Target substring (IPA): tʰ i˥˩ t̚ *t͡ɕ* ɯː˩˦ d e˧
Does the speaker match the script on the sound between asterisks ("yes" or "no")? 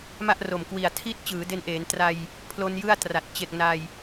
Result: yes